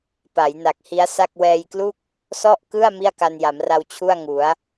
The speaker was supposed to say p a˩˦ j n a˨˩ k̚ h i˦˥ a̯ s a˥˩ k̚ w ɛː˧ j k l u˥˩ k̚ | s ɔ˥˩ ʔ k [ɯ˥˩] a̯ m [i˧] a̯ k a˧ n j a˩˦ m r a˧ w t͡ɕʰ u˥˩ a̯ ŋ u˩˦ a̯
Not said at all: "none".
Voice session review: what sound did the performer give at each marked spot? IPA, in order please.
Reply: ɯ˥˩, i˥˩

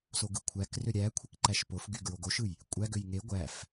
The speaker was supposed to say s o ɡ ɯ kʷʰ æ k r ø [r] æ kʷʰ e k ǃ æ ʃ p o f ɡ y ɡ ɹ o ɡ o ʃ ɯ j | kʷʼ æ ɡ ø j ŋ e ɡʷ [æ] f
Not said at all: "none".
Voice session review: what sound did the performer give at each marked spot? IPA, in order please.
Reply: ɾʲ, æ

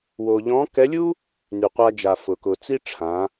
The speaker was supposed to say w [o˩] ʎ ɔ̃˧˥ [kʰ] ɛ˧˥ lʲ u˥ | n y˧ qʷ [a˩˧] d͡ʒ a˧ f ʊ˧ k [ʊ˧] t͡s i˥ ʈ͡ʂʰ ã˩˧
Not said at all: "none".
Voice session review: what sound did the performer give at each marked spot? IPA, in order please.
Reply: o˧, k, a˥, ʊ˧

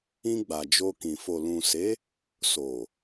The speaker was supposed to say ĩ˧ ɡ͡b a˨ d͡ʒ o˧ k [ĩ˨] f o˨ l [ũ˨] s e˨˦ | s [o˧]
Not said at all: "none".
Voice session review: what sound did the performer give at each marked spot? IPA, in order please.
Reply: ĩ˨, ũ˨, o˨

